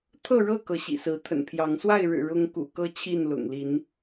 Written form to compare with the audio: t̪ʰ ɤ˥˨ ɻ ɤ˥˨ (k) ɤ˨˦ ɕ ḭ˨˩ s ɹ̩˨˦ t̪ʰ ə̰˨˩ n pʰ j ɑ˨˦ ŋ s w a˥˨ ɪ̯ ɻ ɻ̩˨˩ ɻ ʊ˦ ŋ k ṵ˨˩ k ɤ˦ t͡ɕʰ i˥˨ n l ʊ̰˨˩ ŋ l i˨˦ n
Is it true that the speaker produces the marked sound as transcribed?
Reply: yes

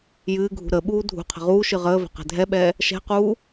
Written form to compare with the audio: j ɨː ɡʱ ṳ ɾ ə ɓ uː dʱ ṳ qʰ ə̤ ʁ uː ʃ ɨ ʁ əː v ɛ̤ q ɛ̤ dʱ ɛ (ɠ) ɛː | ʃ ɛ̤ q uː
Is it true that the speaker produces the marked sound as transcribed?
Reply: no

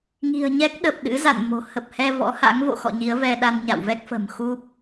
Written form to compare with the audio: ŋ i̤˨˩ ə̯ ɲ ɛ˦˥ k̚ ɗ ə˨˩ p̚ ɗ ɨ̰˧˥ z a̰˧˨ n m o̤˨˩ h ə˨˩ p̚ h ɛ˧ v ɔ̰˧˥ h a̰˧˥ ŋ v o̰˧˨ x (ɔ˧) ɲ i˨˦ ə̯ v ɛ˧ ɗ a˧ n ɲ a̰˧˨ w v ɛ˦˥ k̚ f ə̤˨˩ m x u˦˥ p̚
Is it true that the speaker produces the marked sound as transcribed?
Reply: no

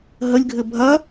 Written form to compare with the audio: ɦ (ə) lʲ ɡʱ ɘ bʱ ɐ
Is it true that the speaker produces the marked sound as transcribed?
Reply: yes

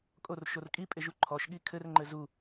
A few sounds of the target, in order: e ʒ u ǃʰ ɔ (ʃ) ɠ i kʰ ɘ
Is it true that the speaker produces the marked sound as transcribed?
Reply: yes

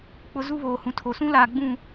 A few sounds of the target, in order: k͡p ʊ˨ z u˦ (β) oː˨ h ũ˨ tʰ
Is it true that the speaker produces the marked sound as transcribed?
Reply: yes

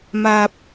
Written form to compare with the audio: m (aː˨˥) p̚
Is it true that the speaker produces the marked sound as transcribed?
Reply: no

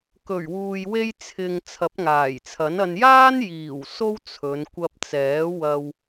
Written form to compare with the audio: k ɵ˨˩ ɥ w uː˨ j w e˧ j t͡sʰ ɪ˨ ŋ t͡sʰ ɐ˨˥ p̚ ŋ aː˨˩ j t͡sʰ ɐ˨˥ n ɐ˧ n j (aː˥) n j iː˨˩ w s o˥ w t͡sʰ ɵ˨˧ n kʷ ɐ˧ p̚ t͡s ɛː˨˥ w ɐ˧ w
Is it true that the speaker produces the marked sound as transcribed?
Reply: yes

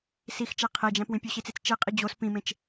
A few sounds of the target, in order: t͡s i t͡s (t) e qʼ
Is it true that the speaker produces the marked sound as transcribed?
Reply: no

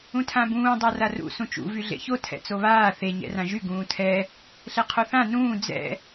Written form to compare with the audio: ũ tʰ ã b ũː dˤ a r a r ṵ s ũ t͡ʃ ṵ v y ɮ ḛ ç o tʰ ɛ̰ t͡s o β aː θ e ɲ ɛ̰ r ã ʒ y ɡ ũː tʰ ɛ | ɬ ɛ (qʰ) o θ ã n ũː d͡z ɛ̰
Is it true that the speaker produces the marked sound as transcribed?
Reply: yes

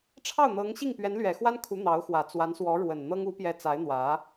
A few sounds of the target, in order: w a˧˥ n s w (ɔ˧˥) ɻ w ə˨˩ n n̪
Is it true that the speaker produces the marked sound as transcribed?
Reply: yes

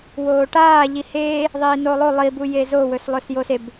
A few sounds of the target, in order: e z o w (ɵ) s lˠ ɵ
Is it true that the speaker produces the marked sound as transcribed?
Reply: yes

